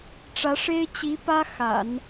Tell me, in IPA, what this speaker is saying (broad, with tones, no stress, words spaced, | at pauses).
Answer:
ʈ͡ʂä˧˥ʂe˥ɪ̯ t͡ɕi˧˥ pä˥ xa̰˨˩˦n